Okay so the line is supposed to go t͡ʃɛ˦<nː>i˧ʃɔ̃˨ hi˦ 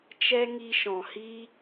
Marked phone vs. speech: incorrect: ŋ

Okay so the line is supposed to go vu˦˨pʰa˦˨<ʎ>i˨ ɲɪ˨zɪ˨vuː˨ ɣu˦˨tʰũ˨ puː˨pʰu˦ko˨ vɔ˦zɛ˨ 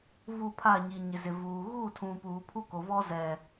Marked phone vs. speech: incorrect: ɲ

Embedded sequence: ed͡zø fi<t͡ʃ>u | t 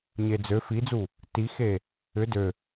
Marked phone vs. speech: incorrect: d͡z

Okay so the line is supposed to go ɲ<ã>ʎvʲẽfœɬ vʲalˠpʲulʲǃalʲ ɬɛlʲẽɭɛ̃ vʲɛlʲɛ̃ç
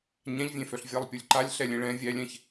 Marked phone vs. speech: correct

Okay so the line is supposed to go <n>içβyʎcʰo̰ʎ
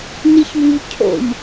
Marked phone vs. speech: correct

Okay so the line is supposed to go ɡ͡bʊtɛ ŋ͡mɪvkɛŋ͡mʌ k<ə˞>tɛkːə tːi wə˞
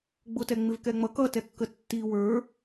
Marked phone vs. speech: incorrect: ʌ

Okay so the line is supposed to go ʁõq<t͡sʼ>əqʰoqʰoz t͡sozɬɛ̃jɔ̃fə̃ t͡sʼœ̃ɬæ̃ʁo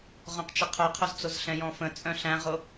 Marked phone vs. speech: incorrect: t͡ʃ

